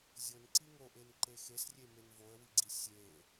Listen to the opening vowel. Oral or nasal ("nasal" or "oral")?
oral